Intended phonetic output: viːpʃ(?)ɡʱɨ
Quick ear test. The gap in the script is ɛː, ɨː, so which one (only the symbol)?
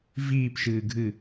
ɨː